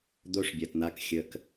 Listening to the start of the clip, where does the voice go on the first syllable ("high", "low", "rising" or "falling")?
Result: high